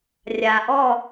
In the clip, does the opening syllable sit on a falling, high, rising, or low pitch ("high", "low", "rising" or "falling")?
low